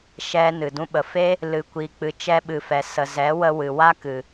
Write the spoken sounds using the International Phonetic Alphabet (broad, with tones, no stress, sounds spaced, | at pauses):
ʃ ɛ˧ n ɨ˨ d ũ˦ ɓ ə˧ f e˦ | l ɨ˨ kʷ i˨ k͡p ɨ˨ t͡ʃ ɛ˧ ɓ ɨ˨ f ɛ˨ s ə˨ z ɛ˨˦ w ə˧ w ɨ˨ w a˦ k ɨ˨